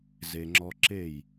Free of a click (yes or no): no